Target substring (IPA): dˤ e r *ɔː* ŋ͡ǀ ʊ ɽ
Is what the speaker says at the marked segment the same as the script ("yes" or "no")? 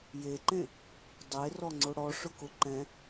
no